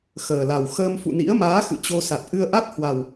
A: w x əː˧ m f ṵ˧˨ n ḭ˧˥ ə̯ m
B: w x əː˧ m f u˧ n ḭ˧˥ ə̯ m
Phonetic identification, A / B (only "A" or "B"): A